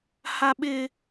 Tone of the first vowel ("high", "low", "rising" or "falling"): high